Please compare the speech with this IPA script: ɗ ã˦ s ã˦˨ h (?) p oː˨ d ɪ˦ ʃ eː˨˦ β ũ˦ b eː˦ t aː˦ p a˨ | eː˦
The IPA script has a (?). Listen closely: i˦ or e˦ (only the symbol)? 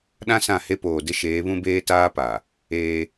e˦